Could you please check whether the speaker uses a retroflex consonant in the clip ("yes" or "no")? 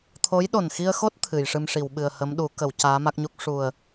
yes